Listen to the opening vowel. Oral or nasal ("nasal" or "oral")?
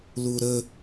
oral